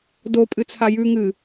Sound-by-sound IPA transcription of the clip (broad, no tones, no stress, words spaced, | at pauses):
do pʼɨt͡sʰajʉ ŋɨ